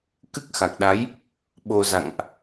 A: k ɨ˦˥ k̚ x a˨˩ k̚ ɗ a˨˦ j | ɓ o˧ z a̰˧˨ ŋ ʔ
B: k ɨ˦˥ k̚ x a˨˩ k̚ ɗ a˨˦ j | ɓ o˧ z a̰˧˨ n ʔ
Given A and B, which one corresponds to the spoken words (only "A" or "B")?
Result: A